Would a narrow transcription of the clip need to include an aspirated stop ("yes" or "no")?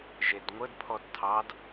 yes